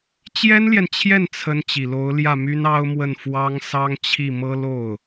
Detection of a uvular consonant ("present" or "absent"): absent